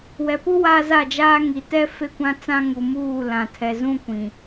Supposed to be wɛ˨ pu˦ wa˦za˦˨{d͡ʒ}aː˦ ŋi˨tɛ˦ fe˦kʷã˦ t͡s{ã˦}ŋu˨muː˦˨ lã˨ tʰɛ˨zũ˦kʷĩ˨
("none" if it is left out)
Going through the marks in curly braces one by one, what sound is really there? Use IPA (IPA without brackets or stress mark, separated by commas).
d͡ʒ, ã˦